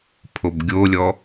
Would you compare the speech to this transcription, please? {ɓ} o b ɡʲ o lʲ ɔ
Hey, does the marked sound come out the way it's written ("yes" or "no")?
no